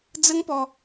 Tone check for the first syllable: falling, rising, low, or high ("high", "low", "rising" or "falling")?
high